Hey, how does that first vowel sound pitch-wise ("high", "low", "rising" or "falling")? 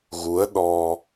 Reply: rising